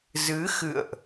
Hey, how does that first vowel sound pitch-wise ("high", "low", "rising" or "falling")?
rising